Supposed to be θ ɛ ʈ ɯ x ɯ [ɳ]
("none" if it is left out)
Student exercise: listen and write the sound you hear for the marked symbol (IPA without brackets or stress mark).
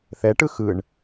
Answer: ɳ